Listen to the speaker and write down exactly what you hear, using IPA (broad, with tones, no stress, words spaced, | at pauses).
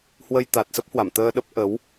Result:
hwə˧jt̪a˨˩t̚sə˦˥p̚hwa˧˩m t̪əː˧ɗə˦˥p̚ʔə˨˦w